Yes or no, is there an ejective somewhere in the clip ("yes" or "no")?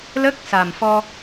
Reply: no